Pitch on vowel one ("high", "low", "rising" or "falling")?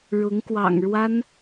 rising